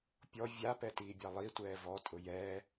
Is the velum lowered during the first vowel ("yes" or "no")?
no